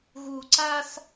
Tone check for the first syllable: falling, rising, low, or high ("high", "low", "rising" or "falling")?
low